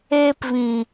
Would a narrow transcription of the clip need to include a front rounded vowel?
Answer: no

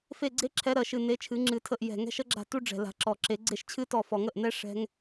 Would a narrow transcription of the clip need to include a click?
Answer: yes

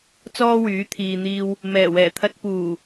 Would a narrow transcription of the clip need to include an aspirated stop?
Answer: yes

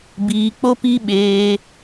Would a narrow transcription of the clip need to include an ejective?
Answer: no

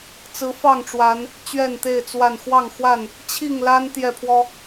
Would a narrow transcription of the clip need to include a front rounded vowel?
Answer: no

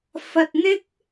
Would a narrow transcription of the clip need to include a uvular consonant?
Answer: no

